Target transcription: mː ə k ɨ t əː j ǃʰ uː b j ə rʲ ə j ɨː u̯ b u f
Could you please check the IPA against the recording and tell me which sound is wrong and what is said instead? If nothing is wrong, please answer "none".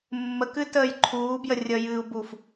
none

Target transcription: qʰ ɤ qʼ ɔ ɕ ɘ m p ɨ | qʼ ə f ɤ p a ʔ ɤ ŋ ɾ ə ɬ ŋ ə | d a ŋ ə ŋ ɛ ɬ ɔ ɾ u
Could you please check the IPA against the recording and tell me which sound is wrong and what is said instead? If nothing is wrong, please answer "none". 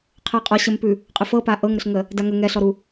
ɨ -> ʉ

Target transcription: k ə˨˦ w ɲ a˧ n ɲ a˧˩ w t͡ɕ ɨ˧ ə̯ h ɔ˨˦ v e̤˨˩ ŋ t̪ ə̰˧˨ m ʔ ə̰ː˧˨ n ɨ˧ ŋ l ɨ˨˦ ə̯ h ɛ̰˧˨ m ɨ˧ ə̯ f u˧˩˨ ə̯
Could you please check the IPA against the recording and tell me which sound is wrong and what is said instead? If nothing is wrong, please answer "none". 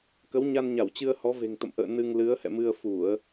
none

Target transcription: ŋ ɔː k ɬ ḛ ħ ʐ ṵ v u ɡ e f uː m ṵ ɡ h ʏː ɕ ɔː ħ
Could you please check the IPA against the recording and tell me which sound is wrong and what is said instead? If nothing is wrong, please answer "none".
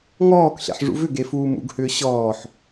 u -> ʏ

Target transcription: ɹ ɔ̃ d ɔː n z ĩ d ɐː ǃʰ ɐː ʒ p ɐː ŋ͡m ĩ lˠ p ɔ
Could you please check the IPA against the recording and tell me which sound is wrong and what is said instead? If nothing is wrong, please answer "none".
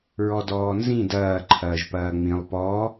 ɔ̃ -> ɔ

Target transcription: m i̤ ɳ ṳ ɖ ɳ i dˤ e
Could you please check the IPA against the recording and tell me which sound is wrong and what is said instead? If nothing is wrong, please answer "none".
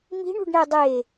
i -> e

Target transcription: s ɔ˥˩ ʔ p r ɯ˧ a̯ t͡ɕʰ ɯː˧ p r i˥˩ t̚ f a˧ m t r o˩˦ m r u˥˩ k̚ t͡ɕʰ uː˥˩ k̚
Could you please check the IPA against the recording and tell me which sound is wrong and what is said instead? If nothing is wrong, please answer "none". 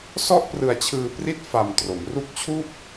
none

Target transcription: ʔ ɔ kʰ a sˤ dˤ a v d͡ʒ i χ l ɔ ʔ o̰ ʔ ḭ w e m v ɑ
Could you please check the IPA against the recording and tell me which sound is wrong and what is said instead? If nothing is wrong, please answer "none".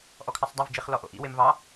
none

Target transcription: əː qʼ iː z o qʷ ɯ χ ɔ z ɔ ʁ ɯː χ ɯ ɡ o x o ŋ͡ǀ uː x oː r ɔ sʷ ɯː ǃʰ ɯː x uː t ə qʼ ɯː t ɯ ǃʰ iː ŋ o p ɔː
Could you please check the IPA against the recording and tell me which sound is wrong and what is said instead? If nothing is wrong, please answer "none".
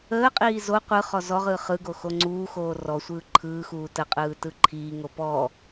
none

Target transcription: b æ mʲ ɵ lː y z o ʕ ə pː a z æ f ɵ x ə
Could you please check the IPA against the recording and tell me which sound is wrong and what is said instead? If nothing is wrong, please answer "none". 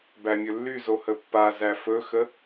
ʕ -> h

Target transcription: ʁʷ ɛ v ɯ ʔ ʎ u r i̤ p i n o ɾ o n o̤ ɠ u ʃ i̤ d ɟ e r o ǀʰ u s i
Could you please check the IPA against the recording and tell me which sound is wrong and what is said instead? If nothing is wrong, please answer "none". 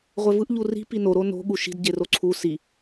none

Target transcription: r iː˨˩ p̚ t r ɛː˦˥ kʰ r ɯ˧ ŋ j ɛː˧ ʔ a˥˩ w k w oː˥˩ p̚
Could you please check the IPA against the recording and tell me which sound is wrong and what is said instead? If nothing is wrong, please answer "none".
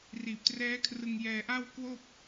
none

